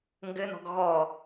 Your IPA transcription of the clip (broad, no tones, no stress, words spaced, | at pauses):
ŋɡɘnɔ̤ɡ ɣɔ